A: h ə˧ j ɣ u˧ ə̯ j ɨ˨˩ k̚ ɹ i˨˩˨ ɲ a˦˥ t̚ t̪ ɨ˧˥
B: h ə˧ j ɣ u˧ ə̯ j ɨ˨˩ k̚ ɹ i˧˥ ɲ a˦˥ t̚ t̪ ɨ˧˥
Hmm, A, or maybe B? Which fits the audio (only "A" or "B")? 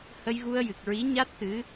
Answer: B